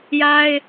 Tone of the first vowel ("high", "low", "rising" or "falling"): high